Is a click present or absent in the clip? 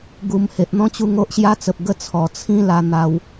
absent